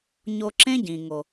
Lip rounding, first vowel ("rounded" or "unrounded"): rounded